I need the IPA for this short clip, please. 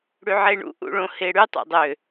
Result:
ɽ y ʕ e ɳ ṵ ʔ ṵ ɭ õ h e ɽ y tˤ o̰ dˤ ø

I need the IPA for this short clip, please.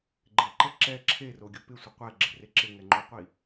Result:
ɡ͡ǃ e ǃ ɛ ǁ ɛ ǁʰ e r o ɡʲ o p ɪ sʷ ɪ qʷ ɛ ɡ͡ǁ ɪ r e ǁ ɪ ŋ ɛ ŋ͡ǃ o qʷ i

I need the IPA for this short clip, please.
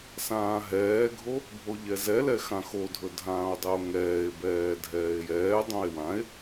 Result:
s ãː ɦ ɛː ɡʱ o | bʱ o ʎ ɛ z ɛ l ɛ x ã x o dʱ ɵ dʱ ãː o̯ dˤ ɛ o̯ ŋ ɛː e̯ b ɛː dʱ ɛː e̯ j ɛː dˤ õ e̯ w ã e̯

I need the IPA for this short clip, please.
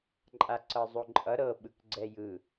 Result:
ǃʼ a ǀ ɤ zˤ o ǃʼ ʌ ɾ ɤ ɓ ɯ k ɡ͡ǀ ɛ j ɯ

